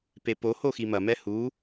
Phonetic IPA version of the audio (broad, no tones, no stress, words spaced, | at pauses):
pepo hoximɐ mɛhu